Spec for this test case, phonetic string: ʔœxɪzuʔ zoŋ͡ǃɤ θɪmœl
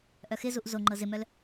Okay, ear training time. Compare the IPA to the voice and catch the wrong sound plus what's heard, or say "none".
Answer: θ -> z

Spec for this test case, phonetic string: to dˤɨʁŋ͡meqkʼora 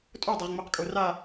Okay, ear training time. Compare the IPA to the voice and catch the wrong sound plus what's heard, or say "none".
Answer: t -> tʼ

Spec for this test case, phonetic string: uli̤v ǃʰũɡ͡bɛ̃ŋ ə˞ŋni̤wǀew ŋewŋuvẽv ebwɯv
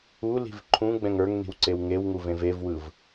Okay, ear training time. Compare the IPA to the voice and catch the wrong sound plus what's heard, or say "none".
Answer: b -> v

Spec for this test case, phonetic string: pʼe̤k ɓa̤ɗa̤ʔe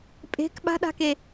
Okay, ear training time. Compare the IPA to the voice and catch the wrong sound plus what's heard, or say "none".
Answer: ʔ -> k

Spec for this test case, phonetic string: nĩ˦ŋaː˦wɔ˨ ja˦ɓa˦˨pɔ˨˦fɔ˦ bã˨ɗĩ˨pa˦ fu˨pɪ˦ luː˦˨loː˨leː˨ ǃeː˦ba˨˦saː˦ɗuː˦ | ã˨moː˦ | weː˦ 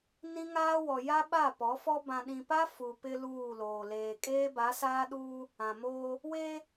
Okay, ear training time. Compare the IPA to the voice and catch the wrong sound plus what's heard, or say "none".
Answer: ǃ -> kʼ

